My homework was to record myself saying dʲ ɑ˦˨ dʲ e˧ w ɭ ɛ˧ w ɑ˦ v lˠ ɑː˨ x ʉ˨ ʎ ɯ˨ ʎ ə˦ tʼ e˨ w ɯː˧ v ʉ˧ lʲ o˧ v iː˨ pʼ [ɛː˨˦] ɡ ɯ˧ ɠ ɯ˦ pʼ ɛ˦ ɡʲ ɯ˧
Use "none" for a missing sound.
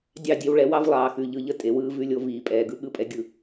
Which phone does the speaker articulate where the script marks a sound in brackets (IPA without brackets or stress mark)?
ɛː˨